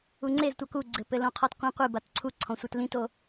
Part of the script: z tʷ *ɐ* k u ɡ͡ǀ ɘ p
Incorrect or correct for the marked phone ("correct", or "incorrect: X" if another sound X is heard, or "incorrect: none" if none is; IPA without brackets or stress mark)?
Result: correct